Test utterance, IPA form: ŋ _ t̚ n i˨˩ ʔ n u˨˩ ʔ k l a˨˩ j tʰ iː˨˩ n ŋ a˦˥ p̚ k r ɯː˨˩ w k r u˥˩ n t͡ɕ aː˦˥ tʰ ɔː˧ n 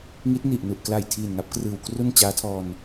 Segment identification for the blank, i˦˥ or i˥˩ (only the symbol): i˦˥